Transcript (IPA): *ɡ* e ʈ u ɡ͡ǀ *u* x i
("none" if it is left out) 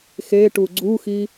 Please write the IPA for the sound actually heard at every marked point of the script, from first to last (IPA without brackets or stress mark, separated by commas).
x, u